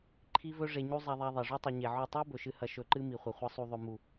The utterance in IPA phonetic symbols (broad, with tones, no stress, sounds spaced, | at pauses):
ǃʰ i˦ v ɵ˦ ʐ e˧ ɲ u˦ zˤ a˧ ðˤ a˧ ðˤ e˨ ʐ ʉ˦ tˤ ɨ˨ ɲ e˨ ʕ o˦˨ tˤ i˦ b ɵ˨ ʃ ɨ˧ h ɐ˧ ʃ ɵ˧ ǃ ɨ˦ m i˨ χʷ ɐ˨ χʷ ɐ˧ sˤ u˨ ðˤ ɵ˨ m u˨